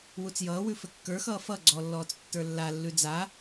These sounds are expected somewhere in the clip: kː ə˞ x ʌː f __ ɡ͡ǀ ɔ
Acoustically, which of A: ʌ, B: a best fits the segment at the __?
A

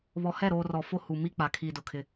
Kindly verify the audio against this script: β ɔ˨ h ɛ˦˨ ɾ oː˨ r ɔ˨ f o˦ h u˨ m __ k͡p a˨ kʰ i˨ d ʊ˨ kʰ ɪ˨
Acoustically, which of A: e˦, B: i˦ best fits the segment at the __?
B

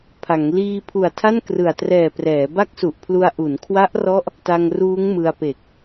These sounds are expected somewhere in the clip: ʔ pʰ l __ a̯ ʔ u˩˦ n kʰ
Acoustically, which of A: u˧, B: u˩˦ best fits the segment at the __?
A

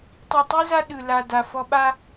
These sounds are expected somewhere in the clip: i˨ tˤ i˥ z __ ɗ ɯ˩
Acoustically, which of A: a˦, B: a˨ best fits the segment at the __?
A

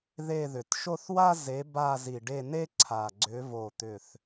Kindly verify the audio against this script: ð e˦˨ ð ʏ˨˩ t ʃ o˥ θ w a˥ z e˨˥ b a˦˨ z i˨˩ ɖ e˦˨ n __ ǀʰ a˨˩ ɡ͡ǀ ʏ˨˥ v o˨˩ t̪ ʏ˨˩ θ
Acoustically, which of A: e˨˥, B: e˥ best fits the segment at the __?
B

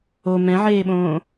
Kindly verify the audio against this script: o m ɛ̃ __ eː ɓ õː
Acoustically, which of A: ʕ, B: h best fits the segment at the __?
A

